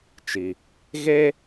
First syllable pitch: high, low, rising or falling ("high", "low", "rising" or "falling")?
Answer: low